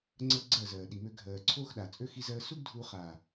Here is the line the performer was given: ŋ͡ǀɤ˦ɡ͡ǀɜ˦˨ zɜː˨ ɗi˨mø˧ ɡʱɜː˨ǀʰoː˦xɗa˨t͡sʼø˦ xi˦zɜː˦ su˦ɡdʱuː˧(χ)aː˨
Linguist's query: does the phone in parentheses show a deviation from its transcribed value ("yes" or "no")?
no